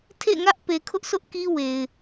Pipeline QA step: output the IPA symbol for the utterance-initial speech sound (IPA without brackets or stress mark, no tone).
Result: tʰ